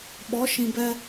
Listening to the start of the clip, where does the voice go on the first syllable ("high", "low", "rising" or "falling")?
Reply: rising